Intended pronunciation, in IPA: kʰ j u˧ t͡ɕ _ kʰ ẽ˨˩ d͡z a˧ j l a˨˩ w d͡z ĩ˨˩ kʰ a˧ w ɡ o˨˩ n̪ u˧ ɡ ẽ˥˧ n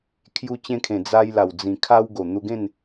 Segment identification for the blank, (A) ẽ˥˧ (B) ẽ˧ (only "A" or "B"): B